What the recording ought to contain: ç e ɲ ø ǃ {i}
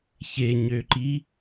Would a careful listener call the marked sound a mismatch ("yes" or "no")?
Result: no